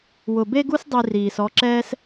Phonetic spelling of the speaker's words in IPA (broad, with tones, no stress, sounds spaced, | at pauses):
w ʊ˧ b e˦ ɡ u˦ s dˤ i˧ r iː˨ s ɔ˧ ǁ ɛː˦ s